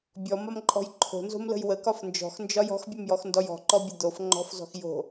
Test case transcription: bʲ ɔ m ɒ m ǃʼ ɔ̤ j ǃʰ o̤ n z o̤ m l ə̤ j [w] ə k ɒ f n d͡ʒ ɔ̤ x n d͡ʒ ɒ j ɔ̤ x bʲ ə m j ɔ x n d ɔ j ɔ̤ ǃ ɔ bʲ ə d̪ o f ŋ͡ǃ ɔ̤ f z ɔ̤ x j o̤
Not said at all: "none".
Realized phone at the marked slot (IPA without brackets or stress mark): w